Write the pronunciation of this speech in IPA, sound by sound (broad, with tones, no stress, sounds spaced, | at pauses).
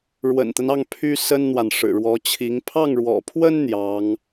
ɻ w ə̰˨˩ n t̪ ə˦ n ɑ˥˩ ŋ pʰ y˥ s ə˥ n n̪ w a˨ n ʂ ɻ̩˨˩ ɻ w ɔ˧˥ t͡ɕʰ i˧˥ ŋ pʰ ɑ˥˩ ŋ ɻ w ɔ̰˨˩ pʰ w ə˥ n n̪ j ɑ˧˥ ŋ